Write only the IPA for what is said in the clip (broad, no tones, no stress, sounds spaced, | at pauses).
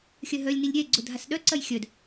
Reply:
xʲ œ ɦ œ lʲ n i lʲ ɾʲ ɛ ɡ͡ǀ ʊ dʱ a s ɗ œ ǀ ɐ j xʲ œ d